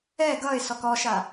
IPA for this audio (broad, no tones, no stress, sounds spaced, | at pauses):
ɛ ɡ ʌ ɪ̯ s ɔ k ɔ ʃ a